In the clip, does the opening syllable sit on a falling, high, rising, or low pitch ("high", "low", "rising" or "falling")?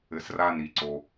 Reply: low